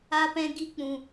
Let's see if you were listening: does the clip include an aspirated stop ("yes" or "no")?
no